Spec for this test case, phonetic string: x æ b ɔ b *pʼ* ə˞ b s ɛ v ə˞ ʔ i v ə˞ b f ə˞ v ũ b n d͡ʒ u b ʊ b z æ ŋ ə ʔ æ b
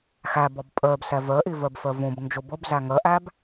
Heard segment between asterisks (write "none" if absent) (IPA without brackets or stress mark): pʼ